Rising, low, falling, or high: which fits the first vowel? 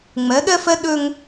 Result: rising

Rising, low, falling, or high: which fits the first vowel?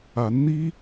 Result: rising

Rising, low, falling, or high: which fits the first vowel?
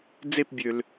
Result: falling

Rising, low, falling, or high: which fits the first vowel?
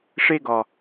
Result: high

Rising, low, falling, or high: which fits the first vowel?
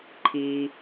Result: low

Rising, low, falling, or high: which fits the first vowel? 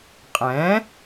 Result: rising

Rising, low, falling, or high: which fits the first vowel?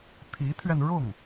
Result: rising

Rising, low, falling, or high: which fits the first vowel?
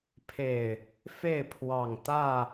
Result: low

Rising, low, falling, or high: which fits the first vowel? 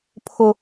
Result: high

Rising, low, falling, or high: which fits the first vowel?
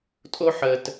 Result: high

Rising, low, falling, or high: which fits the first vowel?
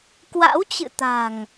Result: rising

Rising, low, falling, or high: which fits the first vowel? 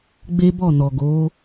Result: high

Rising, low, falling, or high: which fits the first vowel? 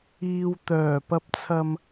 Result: low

